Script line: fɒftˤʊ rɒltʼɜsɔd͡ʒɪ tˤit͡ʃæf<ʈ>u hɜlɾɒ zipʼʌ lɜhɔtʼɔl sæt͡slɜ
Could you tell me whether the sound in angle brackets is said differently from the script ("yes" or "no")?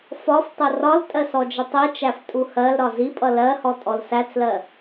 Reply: yes